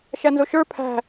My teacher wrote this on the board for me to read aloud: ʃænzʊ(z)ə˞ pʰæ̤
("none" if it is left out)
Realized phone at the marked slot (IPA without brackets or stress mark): ʃ